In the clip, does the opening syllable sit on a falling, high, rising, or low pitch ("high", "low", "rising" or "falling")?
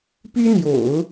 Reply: high